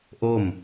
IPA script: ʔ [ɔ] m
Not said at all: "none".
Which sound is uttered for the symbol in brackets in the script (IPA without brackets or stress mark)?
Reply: o